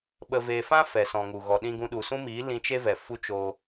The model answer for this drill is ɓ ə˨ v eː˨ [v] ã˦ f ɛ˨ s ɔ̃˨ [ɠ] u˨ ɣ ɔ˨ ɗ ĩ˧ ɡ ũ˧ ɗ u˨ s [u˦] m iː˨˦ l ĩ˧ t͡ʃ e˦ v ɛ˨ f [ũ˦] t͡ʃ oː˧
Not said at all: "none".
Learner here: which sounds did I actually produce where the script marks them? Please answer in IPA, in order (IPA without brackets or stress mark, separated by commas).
f, ŋ, ũ˦, u˦